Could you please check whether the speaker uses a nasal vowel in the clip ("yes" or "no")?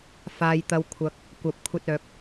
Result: no